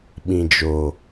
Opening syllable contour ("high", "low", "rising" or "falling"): low